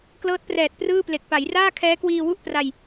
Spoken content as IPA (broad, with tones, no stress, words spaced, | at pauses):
klɤː˦˥t̚prɛː˨˩t̚ prɯː˥˩ple˨˩k̚ pa˩˦jraː˥˩ kʰɛː˦˥kwiː˧wu˥˩ʔ pra˧j